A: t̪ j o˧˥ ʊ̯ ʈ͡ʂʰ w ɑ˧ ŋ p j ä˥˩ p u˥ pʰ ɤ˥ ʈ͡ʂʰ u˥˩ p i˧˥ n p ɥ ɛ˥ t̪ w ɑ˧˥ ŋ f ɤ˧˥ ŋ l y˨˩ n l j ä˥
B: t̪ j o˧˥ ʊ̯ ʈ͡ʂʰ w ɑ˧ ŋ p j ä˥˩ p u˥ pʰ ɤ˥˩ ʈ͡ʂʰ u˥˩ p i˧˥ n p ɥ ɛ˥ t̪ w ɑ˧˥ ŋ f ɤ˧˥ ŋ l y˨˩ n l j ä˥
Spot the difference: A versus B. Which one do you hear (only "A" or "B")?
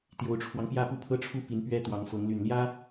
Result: A